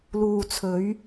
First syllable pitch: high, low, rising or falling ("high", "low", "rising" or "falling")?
low